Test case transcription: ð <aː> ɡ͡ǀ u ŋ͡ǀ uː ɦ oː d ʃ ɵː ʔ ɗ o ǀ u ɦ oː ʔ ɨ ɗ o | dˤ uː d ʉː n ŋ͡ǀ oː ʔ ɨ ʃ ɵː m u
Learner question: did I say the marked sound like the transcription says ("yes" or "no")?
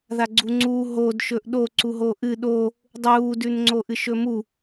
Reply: no